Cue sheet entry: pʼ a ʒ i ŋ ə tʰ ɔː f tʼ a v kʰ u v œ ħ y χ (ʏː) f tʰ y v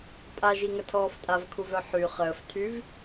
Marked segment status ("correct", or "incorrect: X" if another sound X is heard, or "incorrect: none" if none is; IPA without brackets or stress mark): incorrect: əː